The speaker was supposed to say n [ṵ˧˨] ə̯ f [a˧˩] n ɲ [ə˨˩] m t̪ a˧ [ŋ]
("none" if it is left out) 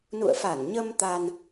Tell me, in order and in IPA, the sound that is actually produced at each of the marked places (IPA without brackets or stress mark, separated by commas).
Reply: ṵ˧˨, a˧˩, ə˧, n